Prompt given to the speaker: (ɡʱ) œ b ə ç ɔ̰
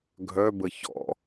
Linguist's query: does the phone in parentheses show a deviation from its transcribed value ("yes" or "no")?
no